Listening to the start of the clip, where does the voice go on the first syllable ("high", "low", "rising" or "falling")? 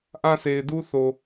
high